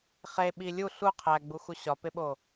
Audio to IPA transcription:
χ e ɓ i lʲ u ɬ u qʰ æ ɡ͡b u x u ɕ ɒ p e ɓ o

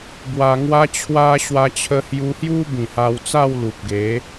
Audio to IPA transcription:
b w a˧ ŋ w a˦ t͡ɕʰ w a˦ ɕ w a˧ t͡ɕʰ ə˧ h j u˧ h j u˦ b ĩ˨˩ h a˧ w t͡s a˥˧ w l u˨ p̚ ɡ e˨˦

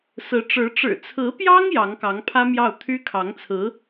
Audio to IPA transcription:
s ɹ̩˧˥ ʈ͡ʂ ɻ̩˧˥ ʈ͡ʂ ɻ̩˨˩ t͡sʰ ɹ̩˧˥ p j ɑ˥ ŋ j ɑ˧˥ ŋ k ɑ˧˥ ŋ pʰ ä˥ m j ɑ˥˩ ʊ̯ t̪ʰ y˥ kʰ ɑ˧˥ ŋ t͡sʰ ɹ̩˧˥

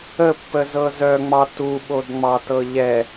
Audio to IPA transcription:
ə pː ə z ɤ z œ ŋ͡m ɑ t u ɓ o d ŋ͡m ɑ t ɤ ʎ ɛ

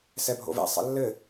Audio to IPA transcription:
s ɛ bʱ o̰ v ɛ̰ sˤ ɛ̰ lː ɘ

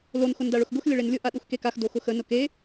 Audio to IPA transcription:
l o n x ʊ n d a ɭ ʊ x ɡ ʊ x lʲ ə ɭ e n lʲ ʊ ʔ a ɗ u x k e k a x d o x ʊ x ə n ʊ k e

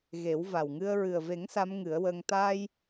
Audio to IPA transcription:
ɣ e˨˩˦ w v a˨˩ w ŋ ɨ˧ ə̯ ɹ ɨ˨˩ ə̯ v e˨˩˦ ŋ s a˧˥ m ŋ ɨ˨˩˦ ə̯ w əː˧ ŋ t̪ a˧ j

